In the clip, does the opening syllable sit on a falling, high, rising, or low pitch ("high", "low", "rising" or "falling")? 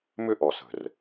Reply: high